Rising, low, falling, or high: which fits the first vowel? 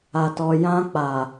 low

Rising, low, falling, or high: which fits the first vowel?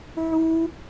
high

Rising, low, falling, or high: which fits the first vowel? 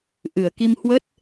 low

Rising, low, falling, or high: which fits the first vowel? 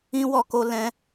high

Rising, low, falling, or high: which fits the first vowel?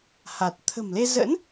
low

